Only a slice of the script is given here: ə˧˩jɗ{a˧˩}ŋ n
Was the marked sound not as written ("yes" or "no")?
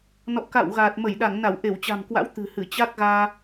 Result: no